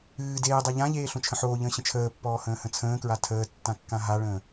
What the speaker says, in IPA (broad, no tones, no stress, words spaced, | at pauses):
ɨː deːdˤa ʎãʎeː ɬõt͡ʃʰə̃ħoːʎə̃ː ɕə̃t͡ʃʰəːpːɔː hə̃ːhə̃t͡sʰə̃ːkɹa tʰəː tːãkːãɦaɭə̃ː